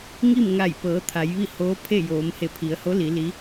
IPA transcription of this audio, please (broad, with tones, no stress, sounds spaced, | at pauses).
ŋ i˥˨ m ŋ a˧˩ j p ɤː˩˧ t̪ʰ a˩˧ j ʋ i˥˨ h oː˧˥ pʰ e˥˨ j oː˩˧ m h e˧˩ pʰ i˩˧ ə̯ h o˧˥ l i˩˧ l i˧˥